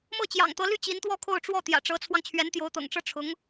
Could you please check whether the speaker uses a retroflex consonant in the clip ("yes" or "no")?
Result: yes